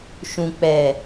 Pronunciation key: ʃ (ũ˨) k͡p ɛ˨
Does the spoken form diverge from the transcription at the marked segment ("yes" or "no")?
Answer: no